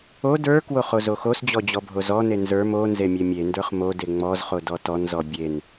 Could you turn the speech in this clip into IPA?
o d ə˞ k w o χ o z o x o s d͡ʑ ɔ d͡ʑ ɔ bʱ o z ɔ n e n z ə˞ m o n z e mʲ e mʲ e n d ə˞ χ m o d e ŋ͡m ɔ z χ o d ɔ t ɔ n z ɔ bʲ e n

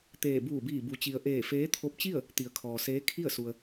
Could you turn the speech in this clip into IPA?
t̪ eː˧˩ b uː˧˩ b iː˧˩ b u˩˧ t͡ɕ i˩ ə̯ ʔ eː˧˩ f eː˧˥ t̪ʰ o˧˥ p̚ t͡ɕ i˥˨ ə̯ | t̪ i˩˧ ə̯ kʰ ɔː˩ s eː˧˥ kʰ i˥˨ ə̯ s u˩ ə̯

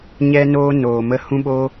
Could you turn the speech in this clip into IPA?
ɲ ɛ˧ n oː˧ n oː˨ m ə˧ h ũ˦ ɓ o˦

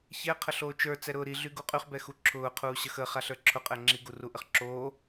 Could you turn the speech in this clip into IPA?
ç ɛ qʰ ə ɬ oː t͡ʃ ə˞ t͡s ɛ ɾ ʊː ɾ i ɮ y ɡ u qʼ y χ b ɛ x u ǁʰ ʊː qʰ uː ɕ ə x ə χ a ɬ ə˞ ǁʰ ʊ qʼ ɛ ŋ͡ǁ i ɡ u r u ʔ ə χ ǁ oː

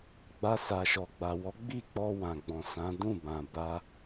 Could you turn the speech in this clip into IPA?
ɡ͡b a˧ s a˨ ʃ ɔ˨ ɡ͡b a˨ w ɔ˨˦ ɡ͡b i˦˨ k͡p ɔ˧ w ã˨ ɡ͡b ɔ̃˨ s ã˨˦ d ũ˦˨ b ã˨ b a˧

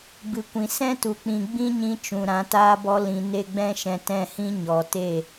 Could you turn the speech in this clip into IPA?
b ɨ˨ kʷ ĩ˨ s ɛ̃˦ t u˨ k͡p ĩ˨ ɡ͡b ĩ˦ ɲ ĩ˧ t͡ʃ ũ˨ ɾ ã˨˦ t aː˦ b ɔ˦ l ĩ˧ n e˦ ɡ͡b ɛ̃˦ ʃ ɛ̃˧ t ɛ̃˦˨ h ĩ˦ ɲ ɔ˨ t e˦˨

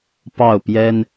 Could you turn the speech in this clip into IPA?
p ɑ˥˩ ʊ̯ p j ɛ˥ n

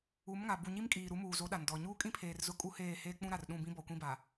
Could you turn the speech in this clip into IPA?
u˨˦ m ŋ a˨ b u˨ ɲ i˦ m kʼ iː˨ ɾ u˨˦ m uː˨ z o˨˦ ɗ a˨ n d ɔ˨ ɲ uː˦ kʼ ĩ˦ pʰ eː˨ r z ʊ˦ kʼ u˦ h eː˦˨ h eː˦ k͡p ũ˦ ɾ a˨ r ɗ ũ˦˨ b ĩ˦ b ɔ˨ kʷ ĩ˦ b a˨

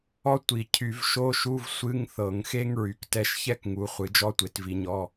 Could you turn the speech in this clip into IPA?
ɔ˥ tʷ i˧˩˧ cʰ y˧˩˧ v ʃ o˧˥˧ ʃ u˧˥˧ v sʷ ɨ˧˥˧ ŋ θ ɤ˧˩˧ ŋ x e˥ ŋ ɹ y˨˦ k t ɛ˥ ʃ ç ɛ˥ k ŋ u˨˦ χʷ ɨ˨˦ d͡ʒ ɔ˥ tʷ e˨˦ t v i˨˦ ɲ ɔ˧˥˧

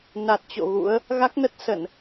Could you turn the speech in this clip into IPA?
n a˨˩ t̚ t͡ɕ o̰˧˨ ɣ ṵ˧˥ ə̯ | ɣ a˦˥ k̚ n ə˦˥ t̚ s ə˧˩˨ n

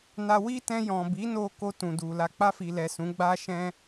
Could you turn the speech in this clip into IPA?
n a˧ w i˦ t ɛ̃˧ j ɔ̃˨ b i˨˦ n o˧ k o˧ t ũ˨ d u˨ l a˧ k͡p a˧ f i˨ l ɛ˨ s ũ˨˦ ɡ͡b a˦ ʃ ɛ̃˦

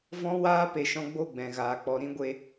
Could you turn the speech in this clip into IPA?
v ɔ̃˦ w aː˦ p e˨ ʃ ɔ̃˧ ɡ͡b o˦˨ ɡ͡b ɛ̃˨ ɣ aː˨ k͡p ɔ˧ ɾ ĩ˦ ɡʷ e˧

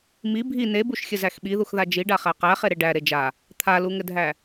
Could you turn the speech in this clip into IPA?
m i bʱ i n e b u ʃ xʲ ɘ z æ x ɓ i ð u x ð a d͡ʒ i ɖ a χ æ q æ χ e ɾ e ɖ æ ɾ e d͡ʒ a | t̪ʰ a l u ŋ ɘ dʱ æ

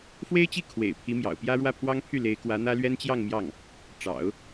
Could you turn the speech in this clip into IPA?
f w e˥ ɪ̯ t͡ɕ i˥˩ kʰ w ḛ˨˩ ɪ̯ pʰ i˧˥ m j ɑ̰˨˩ ʊ̯ p j ä˥ ɻ w ä˥˩ pʰ w ɑ˥ ŋ pʰ y˥˩ l e˧˥ ɪ̯ k w ä˧˥ n̪ ä˥ l ɥ ɛ˥ n t͡ɕ j ɑ˥˧ ŋ m j ɑ˥˩ ŋ | ʈ͡ʂ ɑ̰˨˩˦ ʊ̯

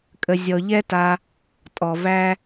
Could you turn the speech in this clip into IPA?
kʼ ə˧ zʲ ɔ˧ ʎ ɛ˦ t a˧ | tʼ ɔ˨ v æ˦

